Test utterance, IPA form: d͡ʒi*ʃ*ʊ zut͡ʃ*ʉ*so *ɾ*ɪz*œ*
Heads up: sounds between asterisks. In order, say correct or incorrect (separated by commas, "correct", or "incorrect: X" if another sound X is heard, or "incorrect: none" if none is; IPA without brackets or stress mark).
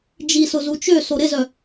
incorrect: s, incorrect: ø, correct, correct